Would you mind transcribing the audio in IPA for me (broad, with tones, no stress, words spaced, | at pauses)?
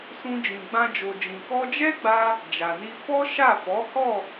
sũ˧d͡ʒĩ˨ ɡ͡bã˧d͡ʒo˨d͡ʒĩ˨ kɔ˧d͡ʒɛ˦ɡ͡ba˧ | d͡ʒa˨ni˧ fɔ˦ ʃa˦˨fɔ˨˦hɔ˦˨